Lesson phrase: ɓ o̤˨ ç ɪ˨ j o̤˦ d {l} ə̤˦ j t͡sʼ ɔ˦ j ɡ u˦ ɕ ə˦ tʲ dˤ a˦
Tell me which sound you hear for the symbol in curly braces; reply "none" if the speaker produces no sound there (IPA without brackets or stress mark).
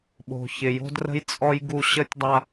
r